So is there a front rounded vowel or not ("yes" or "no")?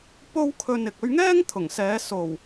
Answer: no